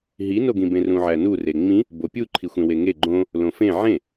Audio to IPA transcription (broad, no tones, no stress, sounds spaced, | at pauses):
ɦ i n o ɡ ĩ b ẽ r ũ ʕ æ n u r e ŋ͡m ĩ | b o pʲ u ǃʰ i xʷ ẽ w e ŋ e ɡ͡ǃ õ | l õ f ẽ ʕ ẽ